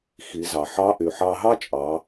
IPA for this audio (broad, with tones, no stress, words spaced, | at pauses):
xi˩˧ zɑ˩ħɑ˧˥ ʔy˩ħɑ˧ɦɑ˥t͡ʃʼɑ˩˧